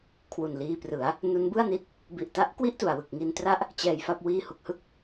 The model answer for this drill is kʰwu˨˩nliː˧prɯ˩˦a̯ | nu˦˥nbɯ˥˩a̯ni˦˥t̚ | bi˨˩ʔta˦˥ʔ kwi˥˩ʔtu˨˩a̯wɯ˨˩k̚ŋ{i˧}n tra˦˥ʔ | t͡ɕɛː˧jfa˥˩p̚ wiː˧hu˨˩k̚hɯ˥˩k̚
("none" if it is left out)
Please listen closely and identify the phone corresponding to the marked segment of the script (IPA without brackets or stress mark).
i˧